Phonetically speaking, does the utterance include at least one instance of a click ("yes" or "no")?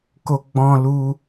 no